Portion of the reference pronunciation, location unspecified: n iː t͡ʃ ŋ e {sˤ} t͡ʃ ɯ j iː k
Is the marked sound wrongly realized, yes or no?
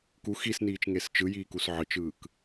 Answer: yes